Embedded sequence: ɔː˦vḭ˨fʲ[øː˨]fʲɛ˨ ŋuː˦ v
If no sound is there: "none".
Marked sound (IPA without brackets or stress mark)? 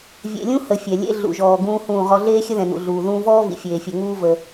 eː˨